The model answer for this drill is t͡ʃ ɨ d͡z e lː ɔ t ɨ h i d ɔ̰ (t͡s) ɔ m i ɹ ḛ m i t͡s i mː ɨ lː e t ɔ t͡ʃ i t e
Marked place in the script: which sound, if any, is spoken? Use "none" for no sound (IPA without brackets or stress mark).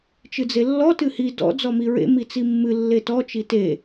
d͡z